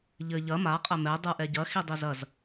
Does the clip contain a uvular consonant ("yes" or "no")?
yes